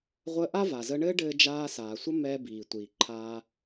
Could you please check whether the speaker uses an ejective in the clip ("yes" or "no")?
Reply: no